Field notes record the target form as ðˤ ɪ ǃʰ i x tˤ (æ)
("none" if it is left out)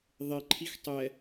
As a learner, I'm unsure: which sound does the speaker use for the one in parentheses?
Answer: ɛ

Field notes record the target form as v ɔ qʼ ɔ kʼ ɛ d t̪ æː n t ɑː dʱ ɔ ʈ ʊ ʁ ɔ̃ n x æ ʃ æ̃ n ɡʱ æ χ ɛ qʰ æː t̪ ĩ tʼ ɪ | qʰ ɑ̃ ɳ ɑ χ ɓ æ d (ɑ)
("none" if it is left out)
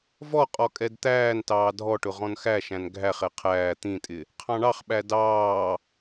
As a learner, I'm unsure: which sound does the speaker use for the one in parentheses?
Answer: ɑː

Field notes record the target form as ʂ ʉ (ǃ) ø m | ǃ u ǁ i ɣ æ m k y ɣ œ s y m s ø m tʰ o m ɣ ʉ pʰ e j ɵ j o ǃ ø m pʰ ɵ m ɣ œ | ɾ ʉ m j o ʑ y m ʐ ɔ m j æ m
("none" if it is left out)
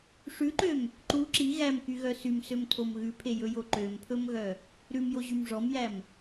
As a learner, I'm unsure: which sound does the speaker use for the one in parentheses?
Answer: ǃ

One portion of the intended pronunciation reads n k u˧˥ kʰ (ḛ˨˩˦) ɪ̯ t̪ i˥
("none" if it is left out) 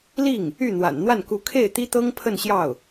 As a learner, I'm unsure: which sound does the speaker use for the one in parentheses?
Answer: e˥˩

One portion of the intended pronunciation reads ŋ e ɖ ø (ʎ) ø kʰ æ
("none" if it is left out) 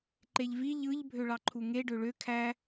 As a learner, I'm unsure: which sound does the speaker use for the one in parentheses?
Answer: ɭ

